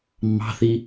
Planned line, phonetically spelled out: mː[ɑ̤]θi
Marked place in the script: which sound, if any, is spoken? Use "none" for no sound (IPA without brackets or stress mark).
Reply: ɑ̤